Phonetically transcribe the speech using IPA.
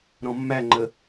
ɾ ɔ̃ mː æ ŋ͡ǃ ə

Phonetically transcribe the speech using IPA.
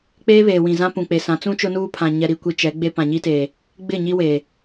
k͡p eː˦ β eː˨ w ĩ˨ z ã˦ p ũ˨ k͡p e˨ s ã˨˦ t͡s ũ˦ t͡ʃ ʊ˦ n uː˦ pʰ ã˨ ɲ ɛ˨ ɾ i˨ kʷ i˨ t͡ʃ ɛ˨˦ ɡ͡b e˦ p ã˨ ɲ i˦ t eː˨ | ɡ͡b ɪ˦˨ ɲ i˦ w eː˨

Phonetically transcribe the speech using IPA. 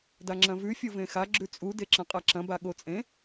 d a ŋ͡ǁ ɐ̃ v ʉ fʲ o v ẽ x a ɡ͡ǁ ʉ t͡sʼ u d e ǁ ɐ̃ qʼ a ǁ ɐ̃ b a ɠ o t͡sʼ ẽ

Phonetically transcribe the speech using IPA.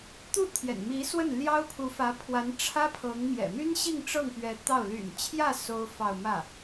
t̪ u˥˩ t̪ʰ j ɛ̰˨˩ n m i˧˥ s w ə˥˩ n l j ɑ˥ ʊ̯ pʰ u˧˥ f ä˧˥ pʰ w a˧˥ n ʈ͡ʂʰ ä˥ pʰ ɤ˧˥ ŋ m j ɛ̰˨˩ m y˥ n ɕ i˥˧ ŋ ʈ͡ʂ ɤ˥˩ ŋ p ɥ ɛ˧˥ t̪ ɑ˥˩ ʊ̯ l y̰˨˩ n t͡ɕʰ j ä˥˩ s o˥ ʊ̯ f ɑ˥˧ ʊ̯ m ä˥˩

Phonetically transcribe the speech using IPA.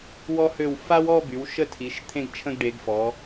w ɔ˧ h ø˧˩ w f a˥ w ɔ˥˧ b y˩˧ w ʃ ə˧ tʰ i˩˧ ʃ t̪ʰ ẽ˧ ɡ t͡ʃʰ ə̃˧ ɡ ɖ e˩˧ ɡ f ɔ˩˧

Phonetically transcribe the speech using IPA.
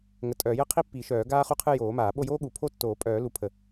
ŋ ə˨˩˦ tʼ œː˨˩˦ j ə˥˧ qʰ i˥ pː i˨˩˦ ʃ œː˨˩˦ ɡ aː˥ χ u˥˧ qʰ ɨ˥˧ j oː˨˩˦ m aː˨˩˦ ɓ o˥˧ j oː˥ ɠ u˨˩˦ pʰ o˥˧ tː oː˨˩˦ pʼ œː˨˩˦ l u˨˩˦ pʰ ə˨˩˦

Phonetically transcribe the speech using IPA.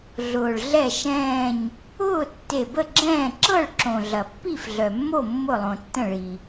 ɮ ʊː˩ ɭ ɮ ɛ˧˩ ʃ ɛ̃ː˧˩ ɲ | ʊː˥˨ tː e˧˩ b ə˥˨ ɡ͡ǁ ɛ̃ː˥˨ ǁ ɤ˥˨ ɭ ǁ õ˩ ɮ ɐ˩ pː i˥˨ f ɮ œ˩ mː o˥˨ mː ʊ˧˩ lˠ õ˩ tː ə̃˧˩ ɭ i˩

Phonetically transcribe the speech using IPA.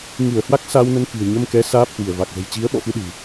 ŋ ɨ˧˩ ə̯ h w a˦˥ k̚ s a˧ w n ə˧ n k ɨ̤˨˩ ə̯ ɲ ə˧ m k ɛ˨˦ s aː˦˥ p̚ h w i˧˩ ə̯ v a˨˩ k̚ z ə̤˨˩ j t͡ɕ i˨˦ ə̯ ɓ ɔ̰˧˨ f ɨ˧ ɗ ɨ̤˨˩

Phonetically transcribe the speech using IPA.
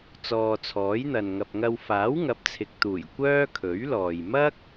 t͡s ɔː˨ t͡sʰ ɔː˨˥ j n̪ ɐ˨ n ŋ ɐ˨ p̚ ŋ ɐ˧ w f aː˨˥ w ŋ ɐ˨˥ p̚ t͡sʰ ɪ˨ k̚ t̪ uː˨˩ j kʷ œː˥ kʰ ɵ˨˥ ɥ l ɔː˨ j m ɐ˥ k̚

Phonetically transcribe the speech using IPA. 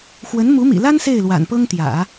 x w ə˧˥ n m u˧˥ m ḭ˨˩ l a˥ n s e˥˩ ɪ̯ l w a̰˨˩ n p ɤ˥ ŋ t̪ j ä̰˨˩˦

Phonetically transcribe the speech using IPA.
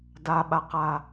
d a ɓ a q a

